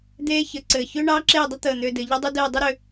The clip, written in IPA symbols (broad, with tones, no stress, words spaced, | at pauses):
d̪eː˥çɘ˧ǀɘː˧˩ çʏː˥ɳɑː˥ǁeː˥˧dˤə˥ t̪əː˧˩n̪ʏː˧dɘ˩˧ ʎɘ˥dˤʏ˥dɘː˥˧ dˤʏ˥ɾʏ˧